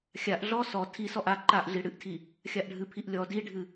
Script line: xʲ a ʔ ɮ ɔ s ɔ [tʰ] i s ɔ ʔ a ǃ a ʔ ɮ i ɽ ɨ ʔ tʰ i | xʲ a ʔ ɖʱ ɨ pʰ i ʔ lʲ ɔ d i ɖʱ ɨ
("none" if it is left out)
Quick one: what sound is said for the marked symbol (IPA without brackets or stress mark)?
tʰ